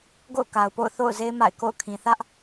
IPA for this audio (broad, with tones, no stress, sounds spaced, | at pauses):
ɡ o̰˦˨ ʊ̯ k a˨ ʊ̯ p o̰˦˨ ʊ̯ θ o̰˦˨ ʊ̯ z e˦ ɪ̯ m a̰˦˨ ɪ̯ k o̰˦˨ ʊ̯ kʰ ĩ˨ θ ä˦ ʔ